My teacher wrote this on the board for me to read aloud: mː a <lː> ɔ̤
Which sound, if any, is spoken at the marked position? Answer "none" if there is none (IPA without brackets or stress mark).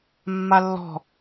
lː